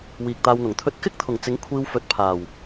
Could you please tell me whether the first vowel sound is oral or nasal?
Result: oral